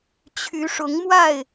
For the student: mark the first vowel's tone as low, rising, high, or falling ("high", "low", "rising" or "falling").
rising